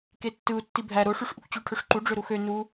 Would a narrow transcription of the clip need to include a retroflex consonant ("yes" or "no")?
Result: yes